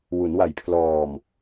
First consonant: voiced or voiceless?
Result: voiced